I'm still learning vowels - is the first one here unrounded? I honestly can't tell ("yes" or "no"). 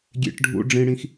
yes